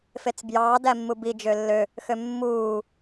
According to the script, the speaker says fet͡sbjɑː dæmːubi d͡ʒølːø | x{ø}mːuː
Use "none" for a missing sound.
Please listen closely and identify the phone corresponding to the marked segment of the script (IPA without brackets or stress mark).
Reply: ø